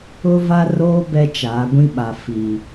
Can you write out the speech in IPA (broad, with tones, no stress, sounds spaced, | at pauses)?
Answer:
ʊ˦ v a˦ r oː˦ b ɛ˦ t͡ʃ aː˨˦ ɡʷ ĩ˦ ɓ a˨ f i˨